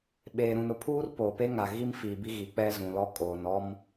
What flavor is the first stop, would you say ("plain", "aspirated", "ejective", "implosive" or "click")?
implosive